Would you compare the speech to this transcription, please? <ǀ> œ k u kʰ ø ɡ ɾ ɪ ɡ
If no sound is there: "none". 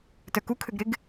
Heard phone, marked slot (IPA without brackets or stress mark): t